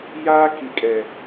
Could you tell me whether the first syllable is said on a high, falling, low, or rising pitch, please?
high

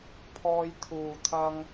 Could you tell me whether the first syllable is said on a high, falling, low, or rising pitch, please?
high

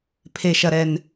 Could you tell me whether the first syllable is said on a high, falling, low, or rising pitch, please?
low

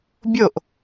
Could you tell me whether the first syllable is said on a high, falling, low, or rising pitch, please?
falling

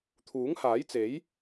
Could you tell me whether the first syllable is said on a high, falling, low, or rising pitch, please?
rising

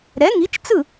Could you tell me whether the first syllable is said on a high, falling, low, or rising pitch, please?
rising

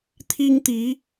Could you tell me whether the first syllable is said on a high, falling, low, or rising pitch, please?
high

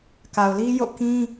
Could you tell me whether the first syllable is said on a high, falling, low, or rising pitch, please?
low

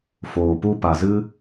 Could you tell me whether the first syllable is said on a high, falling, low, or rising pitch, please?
low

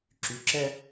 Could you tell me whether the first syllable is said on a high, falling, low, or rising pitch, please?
rising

